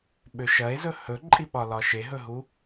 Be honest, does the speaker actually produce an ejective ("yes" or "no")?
yes